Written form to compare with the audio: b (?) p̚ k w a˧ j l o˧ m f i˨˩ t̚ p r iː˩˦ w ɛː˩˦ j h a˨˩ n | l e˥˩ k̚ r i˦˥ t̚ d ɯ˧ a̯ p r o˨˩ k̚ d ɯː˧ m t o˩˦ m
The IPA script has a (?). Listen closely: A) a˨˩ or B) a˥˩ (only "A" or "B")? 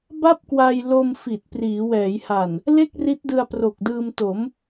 B